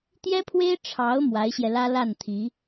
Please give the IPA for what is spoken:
t̪jɛ˥pʰwe˥ɪ̯ ʈ͡ʂʰɑ˧˥ʊ̯ mwa˧˥ɪ̯ɕjɛ˧lä˥ la˥˩nt̪ʰi˧˥

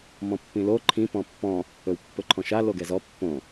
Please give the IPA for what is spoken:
mɔ̃pːĩlo ǃʰĩ pɔ̃pːɔ̃ | ɵwpːɵǃʰɔ̃ʃa loɡɛzɔ pːõ

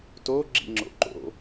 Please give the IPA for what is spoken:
to ɡ͡ǁḭŋ͡ǁo̰ǃo̰

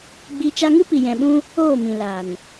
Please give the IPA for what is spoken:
ɡ͡bi˧ t͡ʃa˧ŋɨ˦pi˨ jɛ̃˨ɓũ˧ | oː˦˨mĩ˨laː˨n

